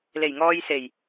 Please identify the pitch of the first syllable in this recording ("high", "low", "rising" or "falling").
low